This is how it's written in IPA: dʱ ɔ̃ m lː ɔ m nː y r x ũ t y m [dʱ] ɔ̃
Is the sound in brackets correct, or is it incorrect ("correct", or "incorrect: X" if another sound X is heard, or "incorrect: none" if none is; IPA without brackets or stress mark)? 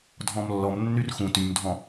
correct